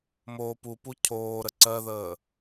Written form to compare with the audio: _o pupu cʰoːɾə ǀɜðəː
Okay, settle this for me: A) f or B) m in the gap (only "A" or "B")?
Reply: B